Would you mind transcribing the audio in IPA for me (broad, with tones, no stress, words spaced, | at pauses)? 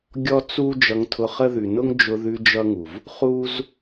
ɡʲɔ˦t͡su˦ d͡ʒʌ˧ŋtʰʊ˧χə˦ðʉ˨ nʊ˦ŋd͡ʒʊ˧ðʉ˧ d͡ʒʌ˦ŋu˨v | χu˦z